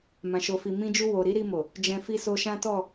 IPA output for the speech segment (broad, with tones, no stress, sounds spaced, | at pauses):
m ã˨ ʃ o˨ f i˨ m ĩ˧ d͡ʒ u˧ w o˨ ɾ i˨˦ ɾ i˧ m o˨ | d͡ʒ ɛ̃˧ f i˧ s o˧ ʃ ã˦ t ɔ˦˨